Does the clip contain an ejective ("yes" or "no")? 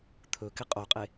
yes